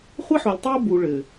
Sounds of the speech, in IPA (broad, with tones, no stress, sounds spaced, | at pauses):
χʷ ɘ˦ ħ o˨ lʲ tˤ e˦ ʊ̯ b u˨ ɭ ɘ˨